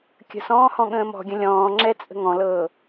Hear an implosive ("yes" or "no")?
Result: yes